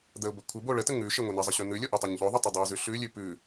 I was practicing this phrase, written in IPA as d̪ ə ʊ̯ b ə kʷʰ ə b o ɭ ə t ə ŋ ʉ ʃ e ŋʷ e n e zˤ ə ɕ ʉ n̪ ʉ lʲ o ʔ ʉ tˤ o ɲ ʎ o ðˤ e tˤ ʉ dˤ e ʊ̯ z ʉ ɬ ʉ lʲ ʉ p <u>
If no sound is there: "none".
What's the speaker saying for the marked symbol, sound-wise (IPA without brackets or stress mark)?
ʉ